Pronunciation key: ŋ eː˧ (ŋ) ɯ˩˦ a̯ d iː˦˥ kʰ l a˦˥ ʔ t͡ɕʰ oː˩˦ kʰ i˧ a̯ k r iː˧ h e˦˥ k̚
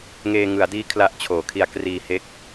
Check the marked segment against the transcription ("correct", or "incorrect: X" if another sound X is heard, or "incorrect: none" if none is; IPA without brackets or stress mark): correct